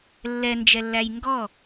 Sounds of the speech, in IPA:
lː ɛ n d͡ʒ ɛ lː æ j ŋ ɡ ɔ

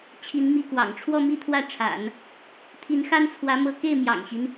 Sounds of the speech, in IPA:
t͡ɕʰ i˧˥ n m i˥˩ k w ɑ̰˨˩ ŋ ʈ͡ʂʰ w ɔ˥˧ m i˥˧ t̪ʰ w ä˥˩ ʈ͡ʂʰ a̰˨˩˦ n | t̪ʰ i˧˥ n x a˥ n t͡sʰ w ä˧˥ m ɤ˥ k e˥˩ ɪ̯ m j ɑ̰˨˩ ŋ ɕ i˦ n

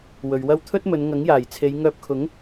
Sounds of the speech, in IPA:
w ɵ˨ ɥ w ɐ˥ w t̪ʰ ɵ˥ t̚ m ɵ˨˧ n ŋ ɐ˨˥ ŋ j aː˨˩ j t͡sʰ e˨˧ j ŋ œː˧ p̚ kʰ ʊ˨˥ ŋ

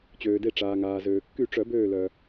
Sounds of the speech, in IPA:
t͡ɕ øː˩ d e˧˩ ʈ͡ʂ aː˩ ŋ aː˩ z øː˩ kː y˧˩ ʈ͡ʂ œ˨˩˦ b øː˧˩ l œ˩

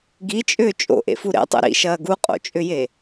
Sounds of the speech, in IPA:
ɡ i t͡ʃʼ ʏː t͡ʃʼ o̰ ʔ ḛ f u ɾ ḛ tˤ ṵ ɾ ḭ ʃ ɐː ɡ u qʼ o̰ t͡ʃʼ ʏ j e

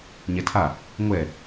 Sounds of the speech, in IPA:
ɲ ɛ tʰ a | ŋʷ ɛ

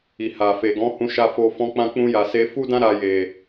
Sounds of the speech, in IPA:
i˨ h a˨ f e˨ ɡ ɔ̃˨˦ h ũ˧ ʃ a˧ f o˧ f ɔ̃˧ k͡p ã˧ k͡p ũ˧ j a˨ s e˧ f u˦ d ã˦ ɾ a˧ j e˨

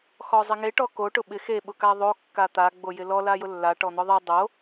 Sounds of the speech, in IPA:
x ɔ zˤ ɪ ŋ e ʈ ɔ k o ʈ ʊ ɓ ɪ x e ɓ ʊ k a ðˤ o kː a t̪ a ɡ͡b o j ɪ l ɔ l a j ʊ lː a ʈ ɔ n̪ ʊ ðˤ e dˤ o

